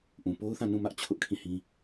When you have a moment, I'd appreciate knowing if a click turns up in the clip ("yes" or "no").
no